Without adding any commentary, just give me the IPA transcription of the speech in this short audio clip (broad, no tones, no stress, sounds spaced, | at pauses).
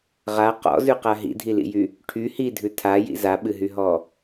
ʁ a q ɔ̰ z ʉ q a ɦ ḭ dʱ i l ḭ j y | ʈʰ y h i dʱ ʉ tʰ a j ḭ z a ɓ ɨ ɦ y ɦ ɔ